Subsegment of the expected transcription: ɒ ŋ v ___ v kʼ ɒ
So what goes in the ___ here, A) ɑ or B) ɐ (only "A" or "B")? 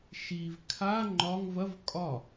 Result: B